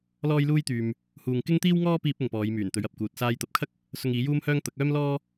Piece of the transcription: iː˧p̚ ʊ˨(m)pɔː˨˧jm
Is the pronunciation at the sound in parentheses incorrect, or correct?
incorrect